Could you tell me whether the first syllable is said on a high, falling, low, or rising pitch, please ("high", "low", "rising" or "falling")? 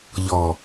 low